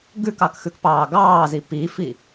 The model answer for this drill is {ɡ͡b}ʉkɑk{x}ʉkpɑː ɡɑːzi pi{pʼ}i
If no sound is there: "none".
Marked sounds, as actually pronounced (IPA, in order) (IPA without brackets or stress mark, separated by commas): ɡ, x, f